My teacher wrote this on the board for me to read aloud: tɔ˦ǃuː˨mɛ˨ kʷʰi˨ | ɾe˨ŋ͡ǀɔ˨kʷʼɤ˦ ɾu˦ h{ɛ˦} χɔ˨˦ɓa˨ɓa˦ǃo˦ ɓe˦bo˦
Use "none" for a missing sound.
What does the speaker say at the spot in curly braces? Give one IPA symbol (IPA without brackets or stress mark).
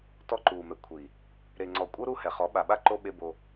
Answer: ɛ˨